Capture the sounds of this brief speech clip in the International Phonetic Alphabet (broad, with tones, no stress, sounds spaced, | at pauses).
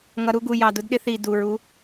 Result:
ŋ ʌ˨˦ ɾ u˦ ɡ u˨˩ j ɑ˨˩ d ʊ˨˦ d ɗ ɪ˦ θ i˨˩ d u˨˩ ɹ u˨˦